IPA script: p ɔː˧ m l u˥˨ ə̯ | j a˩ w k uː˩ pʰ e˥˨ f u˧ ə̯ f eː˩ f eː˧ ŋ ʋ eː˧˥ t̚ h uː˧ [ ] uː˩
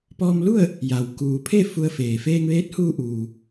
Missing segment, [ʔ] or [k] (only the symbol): ʔ